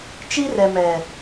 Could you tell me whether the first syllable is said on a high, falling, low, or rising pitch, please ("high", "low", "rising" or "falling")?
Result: high